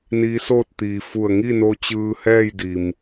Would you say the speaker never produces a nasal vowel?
yes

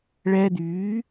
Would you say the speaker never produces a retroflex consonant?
no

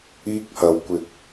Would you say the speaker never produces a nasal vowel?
yes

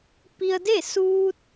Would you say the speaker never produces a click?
yes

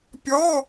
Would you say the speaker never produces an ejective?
yes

